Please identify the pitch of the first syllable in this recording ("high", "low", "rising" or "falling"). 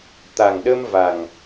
low